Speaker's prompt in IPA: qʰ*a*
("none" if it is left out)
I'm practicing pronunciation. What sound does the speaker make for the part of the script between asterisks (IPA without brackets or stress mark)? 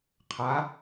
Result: a